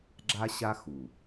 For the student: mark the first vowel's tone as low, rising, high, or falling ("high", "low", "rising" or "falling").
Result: high